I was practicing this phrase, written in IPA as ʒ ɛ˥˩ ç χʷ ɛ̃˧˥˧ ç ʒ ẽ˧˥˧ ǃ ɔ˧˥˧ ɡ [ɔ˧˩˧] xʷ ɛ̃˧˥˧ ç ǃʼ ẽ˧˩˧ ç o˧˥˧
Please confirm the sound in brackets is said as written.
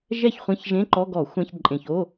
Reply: yes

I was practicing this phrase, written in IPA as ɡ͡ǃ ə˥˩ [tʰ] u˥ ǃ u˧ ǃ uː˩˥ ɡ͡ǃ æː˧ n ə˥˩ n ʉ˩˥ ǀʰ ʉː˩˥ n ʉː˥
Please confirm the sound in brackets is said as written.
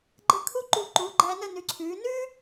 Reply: no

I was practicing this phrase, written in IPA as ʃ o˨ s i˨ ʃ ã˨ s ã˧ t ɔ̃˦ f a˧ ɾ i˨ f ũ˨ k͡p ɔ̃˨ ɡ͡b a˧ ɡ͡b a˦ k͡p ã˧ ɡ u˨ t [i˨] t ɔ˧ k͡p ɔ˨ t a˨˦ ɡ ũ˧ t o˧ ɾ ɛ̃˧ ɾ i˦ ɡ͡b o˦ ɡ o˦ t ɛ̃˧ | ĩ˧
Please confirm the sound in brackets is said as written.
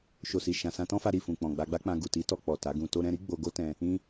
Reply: no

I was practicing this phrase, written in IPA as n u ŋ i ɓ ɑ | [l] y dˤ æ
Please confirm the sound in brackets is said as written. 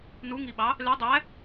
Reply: yes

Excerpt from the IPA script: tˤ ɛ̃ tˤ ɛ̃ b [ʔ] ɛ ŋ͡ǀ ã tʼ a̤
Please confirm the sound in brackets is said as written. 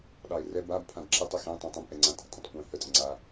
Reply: yes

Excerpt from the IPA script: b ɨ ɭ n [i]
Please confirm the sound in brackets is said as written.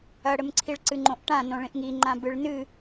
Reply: no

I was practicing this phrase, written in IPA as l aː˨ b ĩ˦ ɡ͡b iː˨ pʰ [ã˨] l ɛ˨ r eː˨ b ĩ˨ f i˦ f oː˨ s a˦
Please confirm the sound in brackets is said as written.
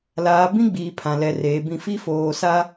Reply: yes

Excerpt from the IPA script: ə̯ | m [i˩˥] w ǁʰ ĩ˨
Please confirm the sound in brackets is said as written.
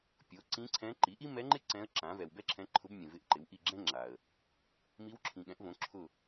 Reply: no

